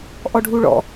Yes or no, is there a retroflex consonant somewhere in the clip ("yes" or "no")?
yes